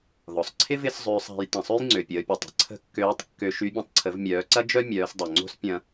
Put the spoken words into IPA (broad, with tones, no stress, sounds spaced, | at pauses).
ð ɔ˩ sˤ ǀʰ ɪ˥ v ɪ˧˥ s zˤ øː˧ sˤ a̤˩˧ j t ɐ̃˩ sˤ ø˥ j ŋ͡ǀ ø˩ pʲ əː˩˧ pʲ o˩ tˤ ə̤˩˧ ǀʰ ə̤˧˥ kː øː˧˥ tˤ kː ø˧ ʃ y˧˥ bʲ ɐ̃˧ tˤ ǀʰ ə˩˧ v mʲ œː˩˧ ǀ ɐ˥ d͡ʒ œ˥ mʲ œː˩˧ s dˤ o˩ ŋ͡ǀ o̤˥ s pʲ ɐ̃˧